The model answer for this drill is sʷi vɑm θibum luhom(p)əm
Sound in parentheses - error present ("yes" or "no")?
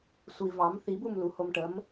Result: yes